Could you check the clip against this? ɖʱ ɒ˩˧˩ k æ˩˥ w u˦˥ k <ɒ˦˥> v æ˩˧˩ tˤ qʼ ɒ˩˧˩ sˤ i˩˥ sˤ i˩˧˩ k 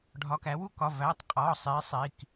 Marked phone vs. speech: incorrect: ɒ˩˧˩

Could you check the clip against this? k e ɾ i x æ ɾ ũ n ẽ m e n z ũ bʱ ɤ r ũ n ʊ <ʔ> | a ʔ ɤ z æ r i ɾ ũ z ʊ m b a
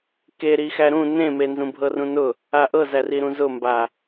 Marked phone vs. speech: incorrect: none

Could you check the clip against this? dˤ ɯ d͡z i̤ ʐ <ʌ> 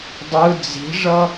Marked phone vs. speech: correct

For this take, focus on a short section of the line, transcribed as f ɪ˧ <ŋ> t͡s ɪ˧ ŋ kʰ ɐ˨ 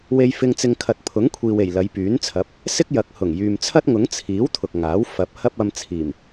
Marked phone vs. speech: correct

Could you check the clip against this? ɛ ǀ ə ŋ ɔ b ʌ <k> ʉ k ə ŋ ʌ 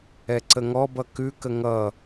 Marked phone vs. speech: correct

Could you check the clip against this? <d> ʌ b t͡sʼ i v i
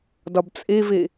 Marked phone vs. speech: correct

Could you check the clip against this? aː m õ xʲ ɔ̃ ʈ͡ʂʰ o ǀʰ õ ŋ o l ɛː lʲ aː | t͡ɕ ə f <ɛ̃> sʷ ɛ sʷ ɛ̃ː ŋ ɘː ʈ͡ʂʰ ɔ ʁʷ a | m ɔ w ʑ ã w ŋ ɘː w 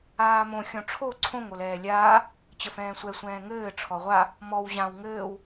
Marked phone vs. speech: incorrect: ɛ̃ː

